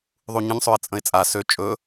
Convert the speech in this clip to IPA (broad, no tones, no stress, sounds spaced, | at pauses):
ðˤ u ɲ ə̃ ɲ sˤ ø ɪ̯ t͡sʼ ə̃ ɪ̯ t͡sʼ a s ø t͡ʃʼ ɵ